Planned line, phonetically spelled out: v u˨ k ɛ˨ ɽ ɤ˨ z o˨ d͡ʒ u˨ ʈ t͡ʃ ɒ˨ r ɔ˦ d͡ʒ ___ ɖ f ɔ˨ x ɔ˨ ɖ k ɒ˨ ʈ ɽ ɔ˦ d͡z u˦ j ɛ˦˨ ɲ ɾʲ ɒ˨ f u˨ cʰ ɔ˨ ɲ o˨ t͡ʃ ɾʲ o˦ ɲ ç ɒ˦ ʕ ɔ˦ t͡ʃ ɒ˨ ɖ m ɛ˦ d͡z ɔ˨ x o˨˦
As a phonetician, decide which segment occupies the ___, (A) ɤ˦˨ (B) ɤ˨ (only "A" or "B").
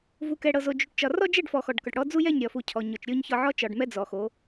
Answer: A